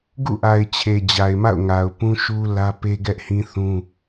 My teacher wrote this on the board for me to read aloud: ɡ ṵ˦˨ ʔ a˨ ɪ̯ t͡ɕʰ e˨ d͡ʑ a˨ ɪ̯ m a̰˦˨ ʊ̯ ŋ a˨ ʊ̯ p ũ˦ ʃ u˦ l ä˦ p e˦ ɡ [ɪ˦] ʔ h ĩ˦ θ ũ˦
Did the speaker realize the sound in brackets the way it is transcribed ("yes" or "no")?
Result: no